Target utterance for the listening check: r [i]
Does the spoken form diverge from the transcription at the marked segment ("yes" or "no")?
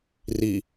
no